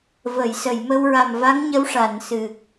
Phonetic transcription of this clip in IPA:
və˨˩˨jsə˨˩˨jmə˧w ɹa˨˩mva˧˥ŋ ɲə˧˥wʂaː˨˩˨nsɨ˨˩k̚

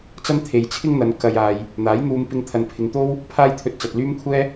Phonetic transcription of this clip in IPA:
t͡sɐ˥nt̪ʰe˨jt͡sʰɪ˥ŋn̪ɐ˨˧n kɐ˧jaː˨j | n̪aː˨˥jn̪uː˧mpɪ˧ŋ t̪ʰɐ˨npʰɪ˨ŋt̪o˥w | pʰaː˥jt̪ʰɵ˧t̚t͡sɐ˨t̚ lyː˥mkʷʰɛː˥

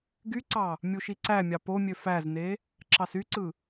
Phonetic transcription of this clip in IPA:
ɡyǀɑ | mʲuʃiǀæmʲɑ pomʲø fæzne | ǁɑsyǀɯ

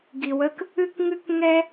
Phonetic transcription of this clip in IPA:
ɡi˨˩wə˥k | ɨ˥kŋɨ˥k ŋɛ˥

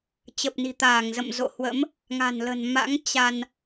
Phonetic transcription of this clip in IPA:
t͡ɕə˨˩p̚ni̤˨˩t̪aː˧˩ŋzə̰˧˨m zo̰˧˨hwə̰˧˥m | ŋa̤˨˩nlə̤˨˩n ma̰˧˥ŋ t͡ɕa˧n

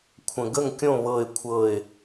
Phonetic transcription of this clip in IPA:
kʷʰə̃˨ ɡə˥˩ŋkʲõ˥˩ βɤ˥˩ɪ̯kʷʰɤ˥˩ɪ̯

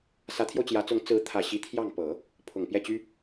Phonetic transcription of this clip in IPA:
sä˧˥t̪ʰjo˧ʊ̯t͡ɕjä˧˥t͡sʊ˧˥ŋ t͡sɹ̩˧˥t̪ʰä˨˩ɕi˧˥ t̪ʰjɑ˥˩ŋ pɤ˨˩˦ | pʰʊ˨˩ŋpjɛ˥˩t͡ɕy˥

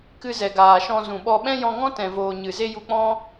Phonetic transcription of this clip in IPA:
kɨ˧zɛ˨ɡaː˨ʃɔ̃˧ zũ˨ɓɔ˧ ɓɛ̃˦jɔ̃˧ŋɔ̃˦ tɛ̃˨voː˨ ɲɨ˨ze˦ ju˧k͡pɔ̃˦

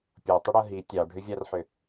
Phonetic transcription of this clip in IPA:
pʲotˤʏɽɤ ɦi tʲɑɖʱʏvʲɑrħʏ

